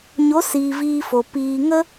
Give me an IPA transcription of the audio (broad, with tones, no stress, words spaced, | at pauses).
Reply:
ɲo˨˦siː˨ viː˧fo˨ piː˨ŋə˦